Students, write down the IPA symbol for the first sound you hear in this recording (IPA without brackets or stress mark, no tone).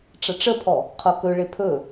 ʈ͡ʂ